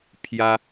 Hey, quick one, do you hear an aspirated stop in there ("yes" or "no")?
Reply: yes